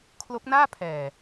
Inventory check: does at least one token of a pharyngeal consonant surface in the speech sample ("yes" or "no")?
no